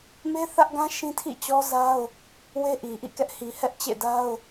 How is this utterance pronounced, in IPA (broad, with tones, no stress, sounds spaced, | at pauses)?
m e˦ θ ä˦ ʔ ɡ ã˦ ʃ ĩ˦ tʰ ḭ˦˨ t͡ɕ ɔ˦ z a˦ ʊ̯ | w e˦ ʔ i˨ ʔ ḭ˦˨ k ɛ˦ ʔ h i˨ h ɛ˦ ʔ t͡ɕ ḛ˦˨ d a˦ ʊ̯